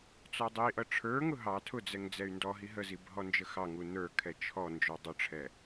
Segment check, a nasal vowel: absent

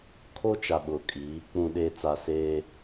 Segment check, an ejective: present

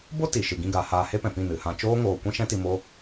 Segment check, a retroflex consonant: absent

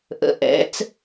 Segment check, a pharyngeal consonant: absent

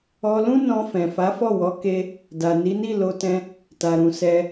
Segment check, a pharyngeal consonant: absent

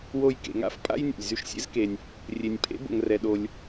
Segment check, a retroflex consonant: absent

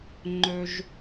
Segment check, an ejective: absent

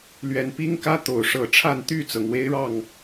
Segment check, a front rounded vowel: present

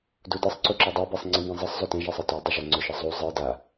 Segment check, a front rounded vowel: absent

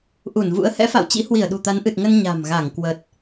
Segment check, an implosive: present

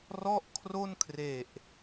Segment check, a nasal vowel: absent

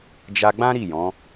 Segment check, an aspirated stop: absent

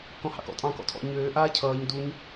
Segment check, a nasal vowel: present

